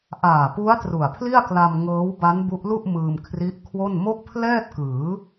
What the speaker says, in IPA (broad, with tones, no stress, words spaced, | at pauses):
ʔaː˨˩pu˦˥a̯ tru˨˩a̯pʰli˥˩a̯kla˧m ŋɤː˦˥wba˦˥nbu˦˥ʔlu˥˩ʔ mɯː˧mkʰri˦˥ʔkʰwo˥˩n mo˥˩k̚pʰlɛː˥˩t̚kɯː˩˦